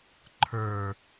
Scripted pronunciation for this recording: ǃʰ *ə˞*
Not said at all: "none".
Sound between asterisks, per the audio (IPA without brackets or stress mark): ə˞